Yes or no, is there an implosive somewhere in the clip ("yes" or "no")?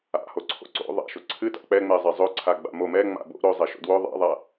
no